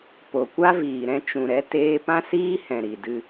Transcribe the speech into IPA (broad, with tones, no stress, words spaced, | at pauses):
po˨kʷa˦viː˨ ɾɛ̃˧t͡ʃũ˨ɾɛ˧ teː˧pã˦siː˦ hɛ̃˨ɾi˨dɨ˧